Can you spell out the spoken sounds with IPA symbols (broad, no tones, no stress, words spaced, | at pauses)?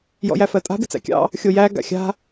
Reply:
jɔ̰jæfɜtʼa̤ bɪt͡sæ̰kʲɑ̰ | xʲojæ ɡa̰xʲa̤